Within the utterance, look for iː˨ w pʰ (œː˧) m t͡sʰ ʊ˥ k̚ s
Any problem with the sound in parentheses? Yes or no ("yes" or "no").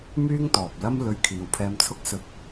yes